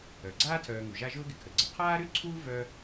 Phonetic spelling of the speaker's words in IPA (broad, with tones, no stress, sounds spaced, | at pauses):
œ˩ ɡ͡ǀ aː˥ tʰ œː˨ ŋ u˩ ʒ a˦ ʒ ʊː˥ ɡ ɪ˨ kʰ ə˩ ɡ͡ǀ ə˨ qʰ aː˦ ɾ y˥ ǀʰ uː˦ v œ˥